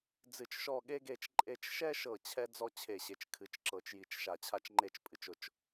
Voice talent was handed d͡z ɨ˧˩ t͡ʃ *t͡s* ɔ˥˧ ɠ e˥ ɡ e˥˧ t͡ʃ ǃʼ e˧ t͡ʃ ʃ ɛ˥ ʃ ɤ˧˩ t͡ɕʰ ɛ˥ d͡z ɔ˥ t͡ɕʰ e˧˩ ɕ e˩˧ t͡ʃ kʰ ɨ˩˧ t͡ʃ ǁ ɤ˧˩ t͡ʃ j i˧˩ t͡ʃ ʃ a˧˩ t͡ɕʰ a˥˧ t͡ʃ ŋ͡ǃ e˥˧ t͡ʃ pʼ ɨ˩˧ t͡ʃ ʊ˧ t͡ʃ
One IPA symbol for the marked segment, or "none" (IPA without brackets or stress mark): ʃ